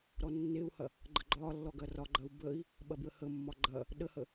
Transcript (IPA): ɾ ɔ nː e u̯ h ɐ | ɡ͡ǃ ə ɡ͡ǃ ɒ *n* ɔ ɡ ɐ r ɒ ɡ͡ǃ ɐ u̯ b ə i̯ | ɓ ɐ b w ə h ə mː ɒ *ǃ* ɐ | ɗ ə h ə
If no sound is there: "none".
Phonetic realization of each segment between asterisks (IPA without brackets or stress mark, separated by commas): lː, ɡ͡ǃ